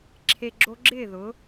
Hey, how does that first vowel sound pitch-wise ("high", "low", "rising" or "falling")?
low